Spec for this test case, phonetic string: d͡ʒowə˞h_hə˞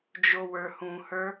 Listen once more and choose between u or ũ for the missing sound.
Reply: ũ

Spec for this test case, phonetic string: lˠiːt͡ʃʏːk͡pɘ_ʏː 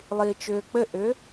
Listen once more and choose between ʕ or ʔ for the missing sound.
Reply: ʔ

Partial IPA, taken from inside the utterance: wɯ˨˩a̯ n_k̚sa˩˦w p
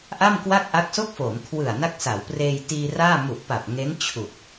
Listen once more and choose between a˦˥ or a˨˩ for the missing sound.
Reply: a˦˥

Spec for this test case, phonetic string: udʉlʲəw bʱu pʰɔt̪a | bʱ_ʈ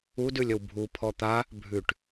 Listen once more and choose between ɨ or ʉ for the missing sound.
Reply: ʉ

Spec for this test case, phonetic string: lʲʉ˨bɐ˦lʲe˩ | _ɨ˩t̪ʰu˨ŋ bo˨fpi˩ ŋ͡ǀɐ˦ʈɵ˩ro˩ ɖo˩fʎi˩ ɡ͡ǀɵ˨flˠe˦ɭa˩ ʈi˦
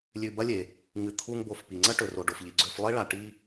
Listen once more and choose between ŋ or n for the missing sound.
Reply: ŋ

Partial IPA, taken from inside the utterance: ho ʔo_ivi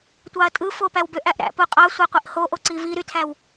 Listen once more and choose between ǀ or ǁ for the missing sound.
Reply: ǀ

